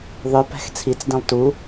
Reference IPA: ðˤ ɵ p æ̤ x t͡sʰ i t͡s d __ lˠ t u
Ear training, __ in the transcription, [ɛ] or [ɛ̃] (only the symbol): ɛ̃